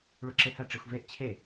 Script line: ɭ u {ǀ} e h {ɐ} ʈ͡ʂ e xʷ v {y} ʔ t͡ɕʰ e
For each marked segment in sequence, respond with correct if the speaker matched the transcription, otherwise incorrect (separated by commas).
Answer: incorrect, correct, incorrect